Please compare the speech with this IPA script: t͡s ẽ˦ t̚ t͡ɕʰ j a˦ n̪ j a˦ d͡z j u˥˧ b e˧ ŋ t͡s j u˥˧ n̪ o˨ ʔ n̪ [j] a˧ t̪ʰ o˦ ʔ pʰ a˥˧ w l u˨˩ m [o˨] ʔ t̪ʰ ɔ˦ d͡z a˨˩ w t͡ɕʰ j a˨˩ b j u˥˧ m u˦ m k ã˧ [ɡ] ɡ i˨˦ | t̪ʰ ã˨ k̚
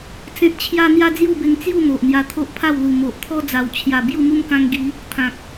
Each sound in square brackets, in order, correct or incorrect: correct, correct, incorrect: ŋ

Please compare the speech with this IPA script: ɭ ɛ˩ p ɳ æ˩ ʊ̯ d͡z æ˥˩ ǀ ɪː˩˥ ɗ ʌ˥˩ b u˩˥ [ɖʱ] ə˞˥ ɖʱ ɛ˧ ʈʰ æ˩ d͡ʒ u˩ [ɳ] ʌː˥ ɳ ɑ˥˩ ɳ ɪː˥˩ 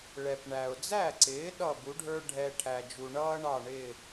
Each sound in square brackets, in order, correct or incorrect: correct, correct

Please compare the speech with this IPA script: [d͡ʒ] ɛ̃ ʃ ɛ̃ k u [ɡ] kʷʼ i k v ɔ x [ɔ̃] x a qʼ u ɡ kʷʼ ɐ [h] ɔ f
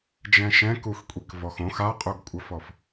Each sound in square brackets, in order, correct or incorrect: correct, incorrect: x, incorrect: õ, incorrect: f

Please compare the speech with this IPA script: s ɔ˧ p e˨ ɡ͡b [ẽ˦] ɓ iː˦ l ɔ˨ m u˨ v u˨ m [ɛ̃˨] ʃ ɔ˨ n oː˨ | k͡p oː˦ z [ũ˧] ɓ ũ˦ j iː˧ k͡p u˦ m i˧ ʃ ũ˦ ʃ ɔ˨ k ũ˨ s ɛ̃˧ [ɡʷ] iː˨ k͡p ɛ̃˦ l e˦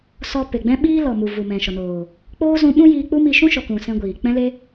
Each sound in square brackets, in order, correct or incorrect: incorrect: ɛ̃˦, correct, correct, correct

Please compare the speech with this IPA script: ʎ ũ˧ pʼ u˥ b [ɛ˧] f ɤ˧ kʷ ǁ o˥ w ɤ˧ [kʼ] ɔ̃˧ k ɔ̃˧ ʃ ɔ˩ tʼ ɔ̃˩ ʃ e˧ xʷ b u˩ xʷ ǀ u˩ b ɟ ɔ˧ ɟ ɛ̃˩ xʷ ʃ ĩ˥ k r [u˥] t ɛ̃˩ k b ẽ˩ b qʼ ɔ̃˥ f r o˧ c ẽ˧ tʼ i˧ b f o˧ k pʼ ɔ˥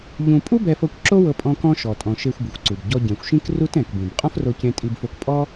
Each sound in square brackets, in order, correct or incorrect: correct, incorrect: pʼ, correct

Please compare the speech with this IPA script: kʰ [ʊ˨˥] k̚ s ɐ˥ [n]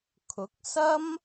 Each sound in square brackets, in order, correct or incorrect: correct, incorrect: m

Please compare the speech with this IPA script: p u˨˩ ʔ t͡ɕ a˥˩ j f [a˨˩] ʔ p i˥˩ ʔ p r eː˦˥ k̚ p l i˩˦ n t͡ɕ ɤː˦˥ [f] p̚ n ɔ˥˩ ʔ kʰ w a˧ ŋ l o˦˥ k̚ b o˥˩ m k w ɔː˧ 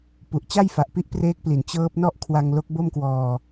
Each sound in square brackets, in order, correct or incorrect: correct, incorrect: none

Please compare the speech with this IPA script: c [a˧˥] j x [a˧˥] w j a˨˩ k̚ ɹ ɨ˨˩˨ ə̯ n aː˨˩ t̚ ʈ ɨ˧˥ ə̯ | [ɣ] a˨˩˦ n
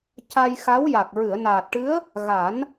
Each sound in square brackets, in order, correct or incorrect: incorrect: a˧, correct, correct

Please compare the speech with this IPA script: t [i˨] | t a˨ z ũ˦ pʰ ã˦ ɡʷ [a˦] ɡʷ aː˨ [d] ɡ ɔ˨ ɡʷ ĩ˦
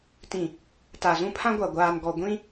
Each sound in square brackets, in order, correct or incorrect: incorrect: ĩ˨, incorrect: a˨, incorrect: n

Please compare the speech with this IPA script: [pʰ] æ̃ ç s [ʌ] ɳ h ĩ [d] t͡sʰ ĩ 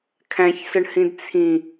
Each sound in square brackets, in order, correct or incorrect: incorrect: kʰ, correct, correct

